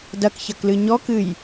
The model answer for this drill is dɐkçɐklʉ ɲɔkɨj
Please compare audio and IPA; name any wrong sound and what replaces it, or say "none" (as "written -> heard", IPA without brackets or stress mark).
ʉ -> ɨ